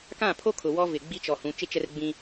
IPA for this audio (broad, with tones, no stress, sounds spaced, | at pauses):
k ã˦˨ pʰ o˦ kʰ ʊ˨ w ɔ˦ v ɪ˨ ɡ͡b i˦ t͡ʃ ɔ˨ h ũ˨˦ t͡ʃ ɪ˦ t͡ʃ ɛ˦ r ɡ͡b ĩ˦